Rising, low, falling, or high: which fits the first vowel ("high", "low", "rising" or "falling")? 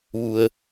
low